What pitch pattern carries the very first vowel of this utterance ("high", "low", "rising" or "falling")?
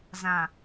low